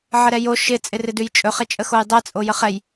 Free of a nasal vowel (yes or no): yes